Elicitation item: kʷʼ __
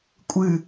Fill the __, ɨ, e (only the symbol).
ɨ